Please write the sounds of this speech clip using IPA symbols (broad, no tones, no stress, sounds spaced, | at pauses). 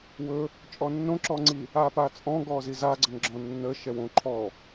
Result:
w ɵ | t͡ʃʼ ɔ nː õ ǁ ɔ ŋ͡ǀ i | a p a t͡sʼ ɔ̃ ɡ ɔ z i z a ɡ͡ǀ ə ŋ ɡ͡ǁ ɔ̃ nː ə ʃ ɛ w õ ǃʰ ɔ